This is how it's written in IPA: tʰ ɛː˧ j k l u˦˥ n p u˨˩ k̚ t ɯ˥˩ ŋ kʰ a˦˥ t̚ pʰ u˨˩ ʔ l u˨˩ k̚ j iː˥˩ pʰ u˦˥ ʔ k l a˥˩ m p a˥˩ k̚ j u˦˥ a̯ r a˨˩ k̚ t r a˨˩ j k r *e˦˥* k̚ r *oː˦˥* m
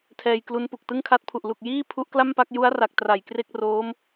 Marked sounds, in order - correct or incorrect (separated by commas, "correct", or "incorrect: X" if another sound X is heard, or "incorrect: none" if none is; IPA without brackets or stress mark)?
incorrect: e˥˩, correct